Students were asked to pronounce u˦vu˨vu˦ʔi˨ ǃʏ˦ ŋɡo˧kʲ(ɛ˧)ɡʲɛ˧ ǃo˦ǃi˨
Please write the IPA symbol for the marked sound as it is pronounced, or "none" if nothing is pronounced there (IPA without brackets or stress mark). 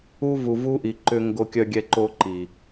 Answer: œ˧